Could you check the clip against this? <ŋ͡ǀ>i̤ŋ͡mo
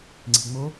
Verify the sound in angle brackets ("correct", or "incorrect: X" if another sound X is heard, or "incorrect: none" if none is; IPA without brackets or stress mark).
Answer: correct